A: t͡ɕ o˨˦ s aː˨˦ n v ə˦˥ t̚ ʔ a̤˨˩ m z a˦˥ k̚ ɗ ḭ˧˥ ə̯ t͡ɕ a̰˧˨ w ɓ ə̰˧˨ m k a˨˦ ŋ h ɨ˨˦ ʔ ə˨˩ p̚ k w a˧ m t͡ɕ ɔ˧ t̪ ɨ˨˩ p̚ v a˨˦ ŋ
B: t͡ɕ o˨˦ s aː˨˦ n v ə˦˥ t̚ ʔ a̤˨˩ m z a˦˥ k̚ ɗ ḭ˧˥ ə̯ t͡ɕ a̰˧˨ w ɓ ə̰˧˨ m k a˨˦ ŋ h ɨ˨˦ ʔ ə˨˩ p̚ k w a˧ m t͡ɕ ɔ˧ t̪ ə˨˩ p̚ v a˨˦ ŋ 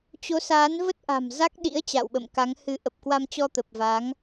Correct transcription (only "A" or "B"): B